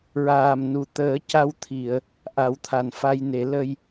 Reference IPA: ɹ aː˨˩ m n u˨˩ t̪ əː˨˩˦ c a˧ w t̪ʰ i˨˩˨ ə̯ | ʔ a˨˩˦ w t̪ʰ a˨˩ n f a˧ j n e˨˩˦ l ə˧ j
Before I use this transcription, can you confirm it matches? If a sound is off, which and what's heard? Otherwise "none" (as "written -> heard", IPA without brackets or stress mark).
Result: none